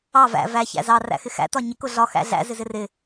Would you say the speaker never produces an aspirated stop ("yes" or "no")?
yes